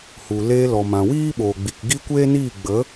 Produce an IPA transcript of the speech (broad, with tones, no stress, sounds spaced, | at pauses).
h u˨ l eː˧ l ɔ˨ m ã˨ w iː˦ ɓ oː˨ ɡ͡b i˨ k ɡ i˦ kʷ eː˦ n iː˦˨ ɡ͡b ə˨˦